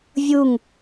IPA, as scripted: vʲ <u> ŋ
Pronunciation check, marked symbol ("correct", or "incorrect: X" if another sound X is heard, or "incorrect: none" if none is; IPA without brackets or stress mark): correct